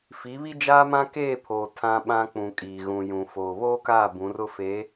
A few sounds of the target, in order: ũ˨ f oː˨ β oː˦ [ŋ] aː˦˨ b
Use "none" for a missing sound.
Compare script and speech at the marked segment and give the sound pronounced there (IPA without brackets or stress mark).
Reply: k